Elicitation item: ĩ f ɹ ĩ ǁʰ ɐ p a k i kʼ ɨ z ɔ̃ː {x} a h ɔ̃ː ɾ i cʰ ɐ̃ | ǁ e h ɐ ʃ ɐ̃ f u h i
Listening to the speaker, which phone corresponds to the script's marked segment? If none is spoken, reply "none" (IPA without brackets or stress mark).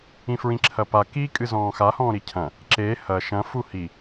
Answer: x